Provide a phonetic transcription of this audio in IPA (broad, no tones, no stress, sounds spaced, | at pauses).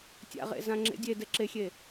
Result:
tʲ a̰ ʁ ḛ z ã ŋ͡ǁ ḛ dʲ e d ɛ ǁ e xʲ e